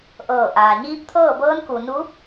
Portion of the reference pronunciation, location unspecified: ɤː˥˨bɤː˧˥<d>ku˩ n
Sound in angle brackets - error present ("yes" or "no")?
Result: yes